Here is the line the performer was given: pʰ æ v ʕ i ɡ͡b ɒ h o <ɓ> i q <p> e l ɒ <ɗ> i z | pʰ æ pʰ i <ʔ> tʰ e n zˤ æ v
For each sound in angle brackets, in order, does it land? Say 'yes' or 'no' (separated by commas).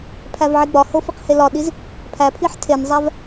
no, no, yes, no